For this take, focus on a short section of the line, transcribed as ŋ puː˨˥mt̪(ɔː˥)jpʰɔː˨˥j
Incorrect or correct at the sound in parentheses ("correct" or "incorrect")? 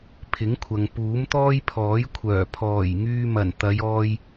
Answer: correct